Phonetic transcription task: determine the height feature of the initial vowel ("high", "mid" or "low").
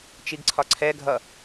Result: high